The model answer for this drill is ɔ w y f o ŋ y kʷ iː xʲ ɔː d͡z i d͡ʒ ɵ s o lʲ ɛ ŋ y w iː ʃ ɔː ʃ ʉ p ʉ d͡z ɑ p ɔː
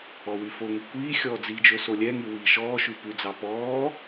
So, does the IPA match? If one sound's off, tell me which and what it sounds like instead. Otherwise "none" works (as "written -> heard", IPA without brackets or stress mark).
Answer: none